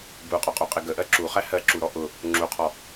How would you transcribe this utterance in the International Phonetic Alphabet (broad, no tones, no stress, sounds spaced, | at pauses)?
b u qʼ ɔ qʼ u qʼ ɪ ɡ ə ʔ ɜ ǁ u χ æ h ɜ ǁ u ɾ ɔ ʔ ʊ | ŋ͡ǁ u qʰ ɔ